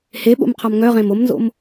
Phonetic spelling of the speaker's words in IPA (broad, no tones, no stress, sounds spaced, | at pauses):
h e ɓ o̰ m qʰ ɒ m ŋ œ ʁ ẽ m o m n z o̰ m